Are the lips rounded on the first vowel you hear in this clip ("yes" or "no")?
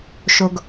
yes